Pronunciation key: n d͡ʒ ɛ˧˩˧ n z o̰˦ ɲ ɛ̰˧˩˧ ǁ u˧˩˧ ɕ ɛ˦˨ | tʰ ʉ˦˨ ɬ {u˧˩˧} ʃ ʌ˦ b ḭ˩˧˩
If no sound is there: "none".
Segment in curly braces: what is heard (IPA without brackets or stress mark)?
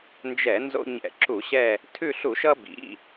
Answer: u˧˩˧